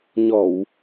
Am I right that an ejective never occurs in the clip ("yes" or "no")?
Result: yes